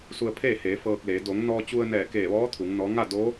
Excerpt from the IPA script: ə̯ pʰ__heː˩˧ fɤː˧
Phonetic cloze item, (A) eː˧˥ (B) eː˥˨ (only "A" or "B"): B